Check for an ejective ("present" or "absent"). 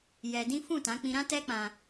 absent